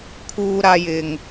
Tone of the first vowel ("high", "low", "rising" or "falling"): high